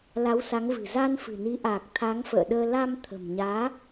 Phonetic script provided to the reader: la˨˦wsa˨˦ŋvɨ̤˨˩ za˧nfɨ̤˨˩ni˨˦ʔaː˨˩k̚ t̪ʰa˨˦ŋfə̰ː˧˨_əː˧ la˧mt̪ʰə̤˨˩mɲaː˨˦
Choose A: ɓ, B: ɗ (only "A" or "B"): B